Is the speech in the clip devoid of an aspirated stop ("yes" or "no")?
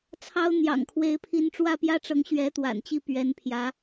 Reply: no